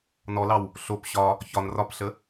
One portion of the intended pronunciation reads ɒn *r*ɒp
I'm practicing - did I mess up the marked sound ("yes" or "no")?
no